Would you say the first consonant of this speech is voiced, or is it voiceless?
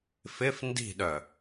voiceless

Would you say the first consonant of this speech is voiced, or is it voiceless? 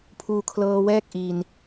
voiceless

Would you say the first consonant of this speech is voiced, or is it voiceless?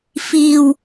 voiceless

